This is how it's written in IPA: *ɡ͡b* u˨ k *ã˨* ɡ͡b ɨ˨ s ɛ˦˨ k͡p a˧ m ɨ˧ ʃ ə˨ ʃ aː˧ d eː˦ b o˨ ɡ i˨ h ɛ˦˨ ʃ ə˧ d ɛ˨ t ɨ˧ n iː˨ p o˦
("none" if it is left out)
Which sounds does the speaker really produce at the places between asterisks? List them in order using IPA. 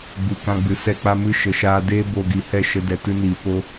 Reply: ɡ͡b, ã˧

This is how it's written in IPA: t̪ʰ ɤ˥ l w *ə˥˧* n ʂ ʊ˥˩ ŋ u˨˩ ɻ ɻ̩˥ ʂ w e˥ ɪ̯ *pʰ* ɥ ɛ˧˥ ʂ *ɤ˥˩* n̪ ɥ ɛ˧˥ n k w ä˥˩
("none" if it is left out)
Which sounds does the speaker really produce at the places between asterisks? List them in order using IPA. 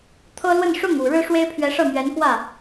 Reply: ə˥˧, pʰ, ɤ˥˩

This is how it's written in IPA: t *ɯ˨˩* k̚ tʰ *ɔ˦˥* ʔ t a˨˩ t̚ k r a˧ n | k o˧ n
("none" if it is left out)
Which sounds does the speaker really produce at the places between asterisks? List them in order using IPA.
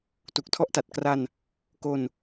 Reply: u˨˩, ɔ˦˥

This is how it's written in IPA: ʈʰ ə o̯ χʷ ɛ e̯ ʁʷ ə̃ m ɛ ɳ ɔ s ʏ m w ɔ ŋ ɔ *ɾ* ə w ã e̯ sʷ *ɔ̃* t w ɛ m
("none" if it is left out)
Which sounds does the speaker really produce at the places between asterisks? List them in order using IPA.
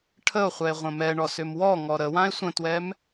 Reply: ɾ, ə̃

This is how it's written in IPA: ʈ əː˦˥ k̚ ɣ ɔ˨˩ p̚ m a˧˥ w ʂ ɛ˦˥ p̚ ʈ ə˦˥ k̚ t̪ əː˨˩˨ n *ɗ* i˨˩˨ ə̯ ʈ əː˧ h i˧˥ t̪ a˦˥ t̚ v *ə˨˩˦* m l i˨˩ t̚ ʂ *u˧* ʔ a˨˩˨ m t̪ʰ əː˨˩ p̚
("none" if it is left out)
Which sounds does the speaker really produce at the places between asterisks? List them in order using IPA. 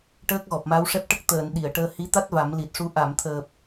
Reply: ɗ, a˨˩˦, u˧

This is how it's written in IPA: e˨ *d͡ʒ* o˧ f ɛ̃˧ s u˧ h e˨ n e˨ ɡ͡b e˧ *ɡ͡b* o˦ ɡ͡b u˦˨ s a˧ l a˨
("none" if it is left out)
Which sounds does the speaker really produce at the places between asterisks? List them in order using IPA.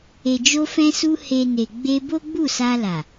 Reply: d͡ʒ, b

